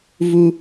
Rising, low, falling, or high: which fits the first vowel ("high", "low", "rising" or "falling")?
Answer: high